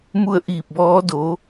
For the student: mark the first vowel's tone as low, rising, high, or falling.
falling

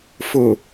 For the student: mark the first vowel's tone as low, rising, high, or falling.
low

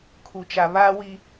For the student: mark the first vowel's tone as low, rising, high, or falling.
low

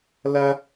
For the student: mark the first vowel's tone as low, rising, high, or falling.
high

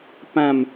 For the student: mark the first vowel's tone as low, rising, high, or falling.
falling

